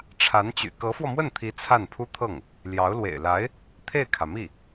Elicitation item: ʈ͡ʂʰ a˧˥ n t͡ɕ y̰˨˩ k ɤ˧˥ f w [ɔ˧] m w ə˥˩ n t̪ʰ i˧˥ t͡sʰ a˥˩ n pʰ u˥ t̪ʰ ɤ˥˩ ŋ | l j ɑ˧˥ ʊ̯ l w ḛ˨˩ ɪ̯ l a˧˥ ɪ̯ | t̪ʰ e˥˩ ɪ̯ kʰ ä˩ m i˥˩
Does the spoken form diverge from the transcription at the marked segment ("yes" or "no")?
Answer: no